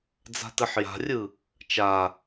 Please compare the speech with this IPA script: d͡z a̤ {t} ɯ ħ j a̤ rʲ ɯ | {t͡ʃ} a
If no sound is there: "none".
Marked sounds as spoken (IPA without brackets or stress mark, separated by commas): t, t͡ʃ